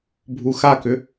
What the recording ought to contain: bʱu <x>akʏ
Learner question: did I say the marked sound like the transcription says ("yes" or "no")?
yes